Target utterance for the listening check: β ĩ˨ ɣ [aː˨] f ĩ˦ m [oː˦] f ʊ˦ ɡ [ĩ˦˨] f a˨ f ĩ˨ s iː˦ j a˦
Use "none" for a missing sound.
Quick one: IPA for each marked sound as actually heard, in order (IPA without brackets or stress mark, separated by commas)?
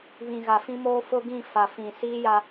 a˨, oː˦, ĩ˦˨